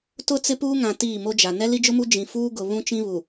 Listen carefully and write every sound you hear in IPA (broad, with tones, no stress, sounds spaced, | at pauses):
t ʊ˦ t͡s ɪ˦ p uː˦ ŋ ã˨ t iː˦˨ m o˦ d͡ʒ a˨ n ɛ˦ l i˦ d͡ʒ ʊ˦ m u˦ d͡ʒ ĩ˨ f uː˦ ɡ ʊ˨ β ũ˦ t͡ʃ ĩ˦ β u˨